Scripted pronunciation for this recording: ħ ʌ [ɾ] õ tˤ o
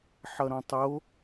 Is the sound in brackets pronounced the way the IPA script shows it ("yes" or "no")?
yes